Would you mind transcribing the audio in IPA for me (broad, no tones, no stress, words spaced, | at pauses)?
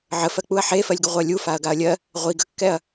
ʕəfɜk͡puɐ̯ ħefɜlʲɡə ʁʷɜlʲufaɐ̯ ɡaɐ̯lʲɜ | ʁʷi ɡəkːɛɐ̯